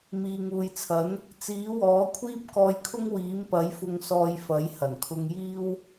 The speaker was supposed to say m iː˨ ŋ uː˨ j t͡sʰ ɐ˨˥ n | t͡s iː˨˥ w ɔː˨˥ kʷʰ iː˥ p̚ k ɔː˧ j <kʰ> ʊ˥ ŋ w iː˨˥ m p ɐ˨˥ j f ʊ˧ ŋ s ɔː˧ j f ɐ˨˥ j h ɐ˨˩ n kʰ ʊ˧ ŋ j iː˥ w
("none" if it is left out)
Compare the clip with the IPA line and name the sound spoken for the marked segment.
kʰ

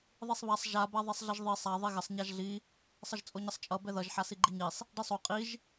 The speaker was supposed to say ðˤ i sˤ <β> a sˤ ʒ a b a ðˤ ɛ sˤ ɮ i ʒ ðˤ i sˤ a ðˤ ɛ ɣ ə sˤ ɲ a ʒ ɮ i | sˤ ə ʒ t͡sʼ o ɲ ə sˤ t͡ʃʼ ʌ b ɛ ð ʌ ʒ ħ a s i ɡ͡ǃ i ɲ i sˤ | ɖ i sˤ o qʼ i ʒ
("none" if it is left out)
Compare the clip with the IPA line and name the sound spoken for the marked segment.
β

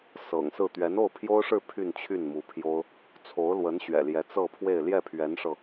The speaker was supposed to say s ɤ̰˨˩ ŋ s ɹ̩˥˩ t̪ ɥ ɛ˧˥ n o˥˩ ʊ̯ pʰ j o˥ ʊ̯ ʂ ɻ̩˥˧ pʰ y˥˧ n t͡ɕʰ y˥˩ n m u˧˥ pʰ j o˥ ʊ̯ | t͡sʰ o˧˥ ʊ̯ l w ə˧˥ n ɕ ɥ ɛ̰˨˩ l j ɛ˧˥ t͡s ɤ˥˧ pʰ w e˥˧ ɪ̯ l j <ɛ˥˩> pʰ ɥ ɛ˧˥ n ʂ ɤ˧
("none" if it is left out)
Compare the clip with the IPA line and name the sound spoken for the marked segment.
ɛ˥˩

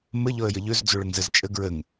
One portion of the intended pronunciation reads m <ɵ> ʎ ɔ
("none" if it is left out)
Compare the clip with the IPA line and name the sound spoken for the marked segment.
ə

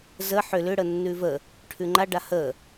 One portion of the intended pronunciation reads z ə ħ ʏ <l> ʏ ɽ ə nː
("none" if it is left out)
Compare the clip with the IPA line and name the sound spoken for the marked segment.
l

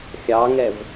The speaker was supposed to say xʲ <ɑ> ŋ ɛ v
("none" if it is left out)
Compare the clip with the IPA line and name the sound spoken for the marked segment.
ɑ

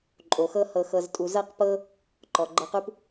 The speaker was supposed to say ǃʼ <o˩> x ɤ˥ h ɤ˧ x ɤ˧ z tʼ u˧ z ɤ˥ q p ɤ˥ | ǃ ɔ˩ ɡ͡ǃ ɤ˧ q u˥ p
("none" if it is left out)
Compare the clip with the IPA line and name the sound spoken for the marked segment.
o˩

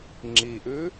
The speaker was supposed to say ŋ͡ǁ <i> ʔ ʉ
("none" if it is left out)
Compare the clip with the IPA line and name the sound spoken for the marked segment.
i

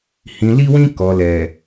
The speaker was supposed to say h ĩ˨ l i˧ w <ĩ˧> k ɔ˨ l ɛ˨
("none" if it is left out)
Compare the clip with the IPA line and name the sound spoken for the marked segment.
ĩ˧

